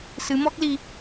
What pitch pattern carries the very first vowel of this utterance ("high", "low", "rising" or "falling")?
rising